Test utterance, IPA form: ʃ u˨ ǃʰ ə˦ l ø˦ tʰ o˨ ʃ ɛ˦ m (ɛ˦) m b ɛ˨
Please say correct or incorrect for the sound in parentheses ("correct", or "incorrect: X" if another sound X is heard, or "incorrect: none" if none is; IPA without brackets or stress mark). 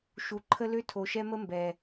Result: incorrect: ə˦